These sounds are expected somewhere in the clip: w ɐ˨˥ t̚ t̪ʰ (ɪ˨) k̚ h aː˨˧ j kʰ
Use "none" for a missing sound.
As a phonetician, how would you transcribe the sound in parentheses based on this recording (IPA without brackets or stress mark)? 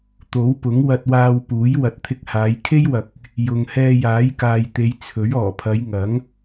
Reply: ɪ˧